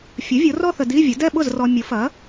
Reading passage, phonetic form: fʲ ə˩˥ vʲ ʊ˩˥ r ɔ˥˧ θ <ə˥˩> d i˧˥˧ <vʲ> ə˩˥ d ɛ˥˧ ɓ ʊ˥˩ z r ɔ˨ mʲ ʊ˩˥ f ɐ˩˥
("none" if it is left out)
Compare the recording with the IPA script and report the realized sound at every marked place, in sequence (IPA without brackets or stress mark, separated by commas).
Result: ə˨, vʲ